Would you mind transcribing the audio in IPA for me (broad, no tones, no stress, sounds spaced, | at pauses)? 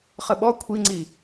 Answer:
χ ə ɓ ɔ kʷʰ i ŋ͡ǀ i